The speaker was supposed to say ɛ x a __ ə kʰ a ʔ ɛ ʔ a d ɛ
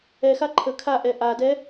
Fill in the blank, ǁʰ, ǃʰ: ǃʰ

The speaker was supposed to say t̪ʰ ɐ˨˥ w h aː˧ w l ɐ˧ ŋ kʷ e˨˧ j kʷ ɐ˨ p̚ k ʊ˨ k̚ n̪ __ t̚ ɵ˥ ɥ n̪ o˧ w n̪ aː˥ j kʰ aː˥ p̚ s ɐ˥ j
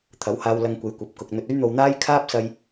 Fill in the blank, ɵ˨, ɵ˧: ɵ˧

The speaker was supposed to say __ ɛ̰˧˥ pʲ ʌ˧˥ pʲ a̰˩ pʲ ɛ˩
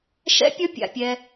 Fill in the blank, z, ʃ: ʃ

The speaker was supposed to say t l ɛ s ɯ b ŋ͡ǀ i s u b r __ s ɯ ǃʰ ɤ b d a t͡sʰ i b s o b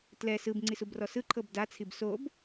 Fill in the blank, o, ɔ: ɔ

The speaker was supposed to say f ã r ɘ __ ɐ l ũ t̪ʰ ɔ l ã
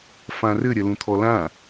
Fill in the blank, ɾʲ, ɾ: ɾʲ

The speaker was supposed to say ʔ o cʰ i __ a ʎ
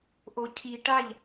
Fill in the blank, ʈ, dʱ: ʈ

